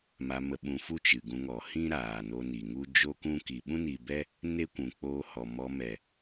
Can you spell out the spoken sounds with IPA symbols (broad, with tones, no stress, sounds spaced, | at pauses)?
m a˧ m ə˧ ɓ ũ˧ f u˦ t͡ʃ ɨ˨ ɡ ũ˧ ŋ ɔ˨ h ĩ˦ ɾ aː˨ n o˧ n i˨ ŋ u˦ d͡ʒ o˦ k ũ˦ k i˨ ɓ ũ˦ n iː˨ b ɛ˦ | n e˦ kʷ ũ˨ k͡p oː˧ h ɔ˨ m ɔ˧ m ɛ˨